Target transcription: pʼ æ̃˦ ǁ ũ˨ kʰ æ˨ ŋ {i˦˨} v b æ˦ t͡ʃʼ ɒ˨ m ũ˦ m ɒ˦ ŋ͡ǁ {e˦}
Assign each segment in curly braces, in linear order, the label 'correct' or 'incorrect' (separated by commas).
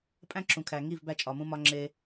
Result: correct, correct